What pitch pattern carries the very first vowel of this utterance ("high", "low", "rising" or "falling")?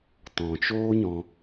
low